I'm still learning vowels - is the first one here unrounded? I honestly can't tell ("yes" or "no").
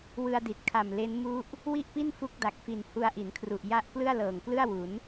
yes